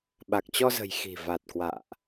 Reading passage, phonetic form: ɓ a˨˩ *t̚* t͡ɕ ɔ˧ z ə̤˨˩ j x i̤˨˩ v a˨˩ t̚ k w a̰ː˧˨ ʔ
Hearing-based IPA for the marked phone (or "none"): k̚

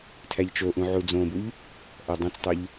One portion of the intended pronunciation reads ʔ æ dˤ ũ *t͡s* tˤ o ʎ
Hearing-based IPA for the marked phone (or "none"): t͡s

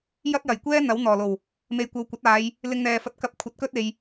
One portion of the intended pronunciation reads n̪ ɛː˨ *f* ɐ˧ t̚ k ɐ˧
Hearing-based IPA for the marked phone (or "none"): f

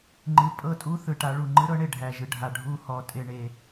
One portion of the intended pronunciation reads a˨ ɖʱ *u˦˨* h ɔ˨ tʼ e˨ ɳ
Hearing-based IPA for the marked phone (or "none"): u˦˨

